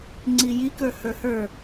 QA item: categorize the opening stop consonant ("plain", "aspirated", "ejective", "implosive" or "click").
click